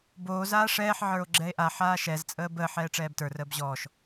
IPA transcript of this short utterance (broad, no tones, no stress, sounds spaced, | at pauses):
b oː z aː ʂ ɛː ħ ʕ ə˞ o̯ ɡ͡ǁ ɛ e̯ ʔ a ħ aː ʃ ɛ z t͡sʼ əː b əː ħ ɛː ʈ͡ʂ ɛː b t ə˞ r əː b ʑ ɔː ʃ